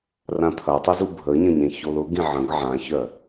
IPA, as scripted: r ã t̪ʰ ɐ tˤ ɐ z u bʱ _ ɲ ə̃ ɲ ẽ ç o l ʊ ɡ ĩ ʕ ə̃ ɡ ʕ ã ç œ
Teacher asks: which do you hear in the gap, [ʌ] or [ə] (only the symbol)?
ə